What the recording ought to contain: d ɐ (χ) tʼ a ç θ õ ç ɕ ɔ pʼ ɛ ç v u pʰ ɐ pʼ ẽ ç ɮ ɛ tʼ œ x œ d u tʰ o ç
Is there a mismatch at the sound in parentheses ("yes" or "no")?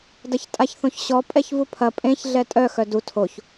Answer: yes